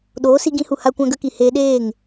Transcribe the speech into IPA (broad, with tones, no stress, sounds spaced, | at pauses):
ɗ oː˨˦ s i˧ ɡ ĩ˧ h u˨ h a˧ kʷ ã˧ ɡ ə˧ k i˨ h eː˧ ɗ eː˦˨ ŋ